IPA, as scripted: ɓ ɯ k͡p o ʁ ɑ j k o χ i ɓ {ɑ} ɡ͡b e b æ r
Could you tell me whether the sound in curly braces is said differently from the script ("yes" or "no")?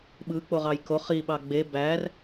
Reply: no